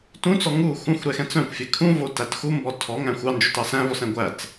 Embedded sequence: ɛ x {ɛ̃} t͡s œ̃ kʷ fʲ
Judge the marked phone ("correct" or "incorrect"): correct